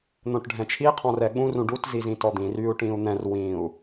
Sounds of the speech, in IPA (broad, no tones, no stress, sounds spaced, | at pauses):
n̪ õ ʈ ɖʱ ɛ̃ t͡ʃʰ i qʰ ɔ̃ r ɛ ɠ ũ r ũ ɖ u t z i z ĩ t ɔ d̪ ĩ r y u̯ ʈ ĩ u̯ n̪ ɛ̃ r w ĩ u̯